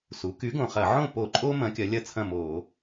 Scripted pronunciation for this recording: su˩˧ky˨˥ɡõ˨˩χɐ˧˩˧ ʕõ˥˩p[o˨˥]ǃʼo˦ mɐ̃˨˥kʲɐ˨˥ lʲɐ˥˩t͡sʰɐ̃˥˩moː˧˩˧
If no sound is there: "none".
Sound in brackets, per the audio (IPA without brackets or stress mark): o˧˩˧